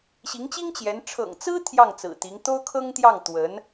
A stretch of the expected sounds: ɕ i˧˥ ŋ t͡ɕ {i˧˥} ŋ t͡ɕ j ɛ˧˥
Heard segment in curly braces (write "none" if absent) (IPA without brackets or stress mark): i˥